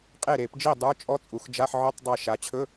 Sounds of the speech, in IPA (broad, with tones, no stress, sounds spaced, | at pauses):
qʼ e˥˩ ɾ e˧˩˧ p d͡ʒ i˥˩ dˤ ə˞˧˥˧ t͡ʃʼ ɔ˧˥ t͡sʼ u˩˧ x d͡ʒ a˧˥˧ ħ ʕ ɵ˧˥˧ tˤ dˤ ɛ˧˩ ʃ a˩˧ t͡ɕʰ ɵ˧˥˧